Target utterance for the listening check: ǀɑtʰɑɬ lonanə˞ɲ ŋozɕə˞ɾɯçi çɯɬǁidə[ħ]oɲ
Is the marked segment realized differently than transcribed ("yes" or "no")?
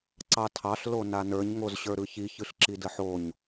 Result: no